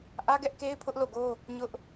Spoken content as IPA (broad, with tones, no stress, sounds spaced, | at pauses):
ʔ ä˦ ɡ ɛ˦ ʔ k e˦ ɪ̯ pʰ ʊ˦ ʔ l o˦˨ ɡ o˦ | ɲ ʊ˦ ʔ